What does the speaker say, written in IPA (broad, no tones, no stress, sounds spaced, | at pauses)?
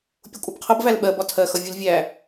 pʲ ʊ kʷʼ ʌ b qʰ ʌ b v æ l ɓ ɜ b ɒ tʰ ɜ x ʌ vʲ u l vʲ æ